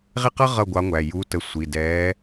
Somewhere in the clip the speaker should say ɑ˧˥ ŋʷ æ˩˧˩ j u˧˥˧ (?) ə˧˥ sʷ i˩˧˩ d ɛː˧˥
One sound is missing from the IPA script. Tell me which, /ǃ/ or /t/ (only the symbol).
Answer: t